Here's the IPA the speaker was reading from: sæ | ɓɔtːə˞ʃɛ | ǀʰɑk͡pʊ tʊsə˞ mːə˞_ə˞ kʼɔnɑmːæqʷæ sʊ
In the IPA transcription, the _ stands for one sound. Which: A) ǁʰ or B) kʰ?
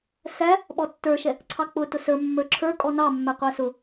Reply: A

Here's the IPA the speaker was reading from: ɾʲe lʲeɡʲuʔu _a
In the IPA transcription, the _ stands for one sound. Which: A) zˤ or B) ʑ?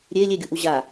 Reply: B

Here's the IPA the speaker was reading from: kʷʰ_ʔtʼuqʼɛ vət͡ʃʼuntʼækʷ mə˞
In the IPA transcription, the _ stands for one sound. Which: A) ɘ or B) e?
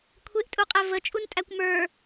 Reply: B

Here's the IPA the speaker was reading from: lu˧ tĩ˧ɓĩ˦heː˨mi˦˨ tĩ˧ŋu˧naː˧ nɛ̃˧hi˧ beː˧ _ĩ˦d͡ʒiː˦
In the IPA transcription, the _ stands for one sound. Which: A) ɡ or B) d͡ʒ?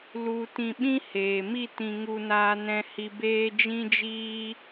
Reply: B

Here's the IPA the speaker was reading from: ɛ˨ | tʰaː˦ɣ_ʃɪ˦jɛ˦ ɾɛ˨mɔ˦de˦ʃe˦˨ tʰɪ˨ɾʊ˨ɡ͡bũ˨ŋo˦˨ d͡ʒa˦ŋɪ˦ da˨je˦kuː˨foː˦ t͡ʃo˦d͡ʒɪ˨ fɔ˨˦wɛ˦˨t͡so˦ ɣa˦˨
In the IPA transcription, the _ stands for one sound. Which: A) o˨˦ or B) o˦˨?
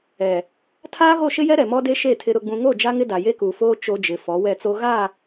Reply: B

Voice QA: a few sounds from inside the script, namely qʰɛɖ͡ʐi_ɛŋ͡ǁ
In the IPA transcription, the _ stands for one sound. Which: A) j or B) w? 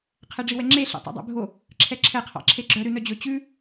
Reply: B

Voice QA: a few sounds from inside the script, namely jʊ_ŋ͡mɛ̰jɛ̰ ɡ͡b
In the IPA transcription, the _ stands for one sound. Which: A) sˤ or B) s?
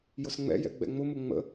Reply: B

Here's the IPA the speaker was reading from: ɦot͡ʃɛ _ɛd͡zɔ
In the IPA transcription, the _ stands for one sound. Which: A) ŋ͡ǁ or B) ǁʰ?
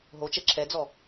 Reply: B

